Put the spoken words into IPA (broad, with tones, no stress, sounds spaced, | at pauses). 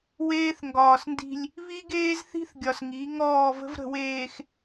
w eː˦ θ ŋ ɡ ɒː˨ s n d i̤˦ lʲ | β i˦ ɡ eː˦ z θ i̤˦ θ ɡʲ ɒ˨ s ŋ i˨˦ ŋ ɔː˦˨ v ə̤˦ v ɾ ə̤˨ w eː˨ x